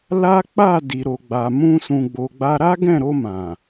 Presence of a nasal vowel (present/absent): present